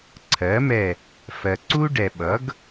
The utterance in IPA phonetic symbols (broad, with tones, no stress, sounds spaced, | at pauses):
ǀʰ ɜ˩˥ m ɛ˧˩ | f ɜ˩ ǀ u˦ ɖ ɛ˩ ɓ ʌ˩˥ ɡ